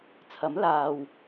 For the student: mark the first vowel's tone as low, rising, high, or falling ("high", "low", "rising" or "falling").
rising